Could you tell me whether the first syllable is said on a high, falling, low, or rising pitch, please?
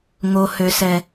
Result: low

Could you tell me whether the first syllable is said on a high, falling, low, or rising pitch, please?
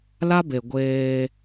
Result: high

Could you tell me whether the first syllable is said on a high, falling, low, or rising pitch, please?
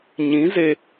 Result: rising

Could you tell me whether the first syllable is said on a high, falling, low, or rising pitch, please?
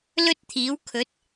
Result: high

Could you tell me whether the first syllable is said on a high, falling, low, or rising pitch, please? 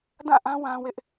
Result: falling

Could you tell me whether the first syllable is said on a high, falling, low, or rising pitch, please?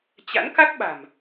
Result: rising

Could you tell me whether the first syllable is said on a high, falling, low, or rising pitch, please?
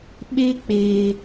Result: high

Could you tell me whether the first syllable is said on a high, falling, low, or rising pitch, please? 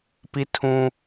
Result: high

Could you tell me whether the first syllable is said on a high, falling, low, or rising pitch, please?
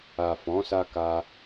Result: low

